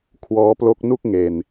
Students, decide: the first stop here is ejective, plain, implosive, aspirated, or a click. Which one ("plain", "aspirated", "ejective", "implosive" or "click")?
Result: aspirated